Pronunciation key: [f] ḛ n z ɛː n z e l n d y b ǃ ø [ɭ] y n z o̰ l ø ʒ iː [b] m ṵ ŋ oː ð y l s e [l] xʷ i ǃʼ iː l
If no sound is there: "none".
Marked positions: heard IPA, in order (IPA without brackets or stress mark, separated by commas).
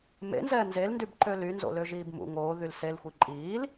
m, l, b, l